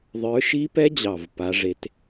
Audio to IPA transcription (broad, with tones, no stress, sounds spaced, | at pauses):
ðˤ ə˞˨˦ ʃ i˦˥ p ɛ˦˥ d͡ʑ ɑ˨˩ v p a˨˦ ʐ e˨˦ t